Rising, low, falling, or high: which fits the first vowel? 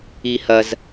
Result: high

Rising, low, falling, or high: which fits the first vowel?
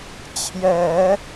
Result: low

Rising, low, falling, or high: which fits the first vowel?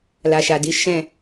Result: low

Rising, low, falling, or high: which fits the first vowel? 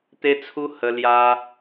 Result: high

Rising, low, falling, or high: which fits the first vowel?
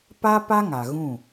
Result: high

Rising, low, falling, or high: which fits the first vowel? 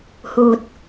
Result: low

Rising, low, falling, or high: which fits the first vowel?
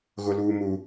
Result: high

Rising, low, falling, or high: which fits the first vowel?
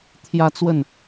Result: falling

